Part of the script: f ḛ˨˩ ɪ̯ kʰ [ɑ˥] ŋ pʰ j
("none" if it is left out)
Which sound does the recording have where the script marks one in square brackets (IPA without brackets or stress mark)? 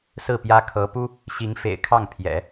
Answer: ɑ˥˩